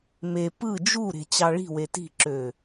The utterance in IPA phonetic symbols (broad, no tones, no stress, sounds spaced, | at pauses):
m e p ɯ d͡ʒ u ɾ e̤ t͡ɕ ɑ ɭ i̤ w e t i̤ ǁ ø